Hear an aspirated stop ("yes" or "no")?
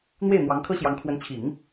yes